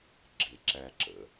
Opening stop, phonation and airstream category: click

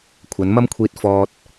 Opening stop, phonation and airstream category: aspirated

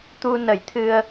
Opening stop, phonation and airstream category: plain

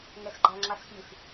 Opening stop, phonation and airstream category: click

